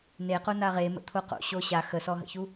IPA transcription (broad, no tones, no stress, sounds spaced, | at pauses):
n e q o n a ʁ e m ə̰ t̪ʰ o q o̰ ɕ o ɕ a x ə s ɔ ɦ ə̰ ç u